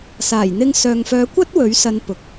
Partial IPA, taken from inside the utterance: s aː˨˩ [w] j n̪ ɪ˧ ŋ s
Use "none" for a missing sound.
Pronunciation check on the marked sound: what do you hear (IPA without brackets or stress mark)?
none